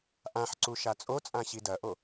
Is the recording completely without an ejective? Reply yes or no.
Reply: no